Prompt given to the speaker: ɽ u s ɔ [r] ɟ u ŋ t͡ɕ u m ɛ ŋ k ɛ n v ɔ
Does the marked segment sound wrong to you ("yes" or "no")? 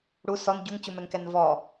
yes